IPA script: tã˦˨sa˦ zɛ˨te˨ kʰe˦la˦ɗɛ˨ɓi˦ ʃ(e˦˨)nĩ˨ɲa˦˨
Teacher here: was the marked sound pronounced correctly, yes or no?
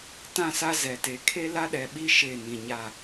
yes